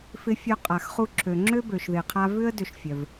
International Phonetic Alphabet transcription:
fɪ˧fʲœ˧qʼa˩x χu˧ǁʰø˩ŋ͡ǁø˥ bø˩ʃðɪ˩qʰa˧ vʏ˥ə̯ dʏ˧ʃfʲœ˩v

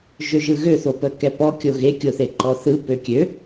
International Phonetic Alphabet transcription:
ʒøʒɯɣø θopəkɛpɔ kʲoɣe kʲoθeǃɔθɯ pøkʲø

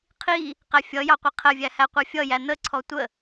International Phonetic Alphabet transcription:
qʰi | qæfʲʌjɑ qʷiqʰəvʲæ hæqʷɑfʲʌjæ n̪əǀʰɔ tʷə

